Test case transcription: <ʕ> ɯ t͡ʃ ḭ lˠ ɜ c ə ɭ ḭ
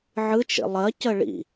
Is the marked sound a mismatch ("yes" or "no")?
no